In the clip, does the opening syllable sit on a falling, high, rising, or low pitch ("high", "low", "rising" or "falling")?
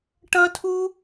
high